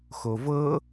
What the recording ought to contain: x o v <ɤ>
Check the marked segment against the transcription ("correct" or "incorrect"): correct